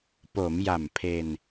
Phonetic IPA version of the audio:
p o˩˦ m j a˨˩ m pʰ e˧ n

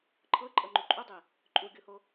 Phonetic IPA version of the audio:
ǃʰ ɤ ǃʼ ɤ ŋ͡ǃ u ǃʼ u dˤ i | ǃʼ u ɡʲ o h o

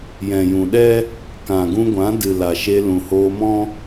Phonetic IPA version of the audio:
j ɛ̃˨ j ũ˨ ɗ ɛ˦ | k ã˨ ɡ ũ˧ ɡʷ ã˨˦ d ɨ˨ l a˨ ʃ e˧ l ũ˨ h oː˧ m ɔ̃˦

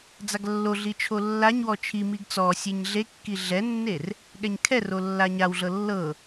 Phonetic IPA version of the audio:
d͡z a ɡ lː o ɮ i t͡ʃʰ o lː a ɲ w ɔ t͡ʃʰ i m i ɡ t͡s ɔ sʲ e ɲ ɮ e kː i ɮ ɛ nː e r | ɠ ɛ ɲ kʰ ɛ r o lː a ɲ a w ɮ ɤ lː ɤ

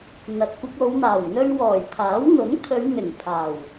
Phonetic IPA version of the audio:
n̪ ɐ˨ t̚ kʷ ɪ˧ k̚ o˨˧ w n̪ aː˨˩ w n̪ ɵ˧ ɥ w ɔː˨˩ j t̪ʰ aː˨˥ w n̪ ʊ˨˥ ŋ t̪ʰ ɵ˨˧ ɥ n̪ ɪ˨˩ ŋ pʰ aː˨˩ w

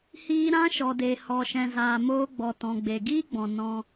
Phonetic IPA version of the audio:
h iː˧ ɾ ã˦ ʃ ɔ˨ d e˨ h ɔ˨ ʃ ɛ̃˨ z aː˨ m oː˧ ɡ͡b ɔ˨ t ɔ̃˨ ɡ͡b e˨ ɡ iː˦ ɡ͡b ɔ̃˨ n ɔ̃˧

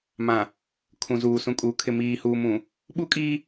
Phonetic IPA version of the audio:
m ã˨ | kʰ ũ˨ z uː˨ s ũ˨ kʼ uː˨ kʰ ɪ˨ m iː˨ h uː˨ m ũ˨ | ɓ u˦ kʼ iː˦

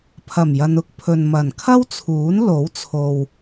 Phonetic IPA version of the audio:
pʰ ɐ˨˩ m j ɐ˨ n ʊ˨˥ k̚ pʰ ɵ˨ n m ɐ˨˩ n kʰ ɐ˥ w t͡sʰ uː˨˥ n l o˨˥ w t͡sʰ o˨ w

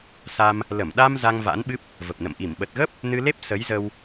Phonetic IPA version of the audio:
s a˧ m | l ə˧˩ m ɗ a˧ m z a˧ ŋ v a̰˧˥ n ɓ ɨ˦˥ p̚ | v ə˨˩ p̚ n ə̰˧˨ m ʔ i˧˩ m ɓ ə˨˩ t̚ ɣ ə˦˥ p̚ | n ɨ˧ l e˦˥ p̚ s ə˨˦ j z ə˧ w

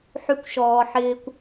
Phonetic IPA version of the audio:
ħ y˨ kʷ ʃ ɔː˩ ħ ɪː˨ kʷ

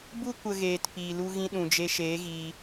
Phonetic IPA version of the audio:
b u˦ kʷ ə˨ ɣ eː˨ t p iː˨ l u˧ ɣ ĩ˧ ɗ ũ˨ d͡ʒ e˧ ʃ eː˨˦ ɣ iː˧

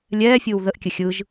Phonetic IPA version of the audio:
lʲ ɛː fʲ ɯː w ð ə ʔ kʲ ə xʲ ɯ ʒ

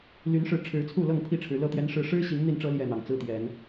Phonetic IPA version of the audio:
l y˨˦ n ʂ ɻ̩˨˦ ʈ͡ʂʰ ɻ̩˨˦ t͡sʰ u˥˨ l ɤ˥˨ ŋ pʰ i˥˨ ʈ͡ʂʰ ɻ̩˨˦ l ɤ˥˨ t̪ j ɛ˦ n ʂ ɻ̩˦ ʂ ɻ̩˦ ɕ i˨˦ ŋ n̪ i˥˨ n ʈ͡ʂ ɤ˦ l j ɛ˥˨ n̪ ɑ˨˩ ŋ t͡s ɹ̩˦ t̪ j ɛ˨˦ n

